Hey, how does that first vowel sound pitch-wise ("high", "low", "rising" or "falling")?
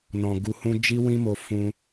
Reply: low